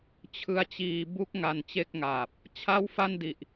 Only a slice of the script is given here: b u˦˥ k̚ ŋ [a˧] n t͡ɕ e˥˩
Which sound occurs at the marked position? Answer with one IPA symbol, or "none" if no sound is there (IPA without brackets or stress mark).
a˧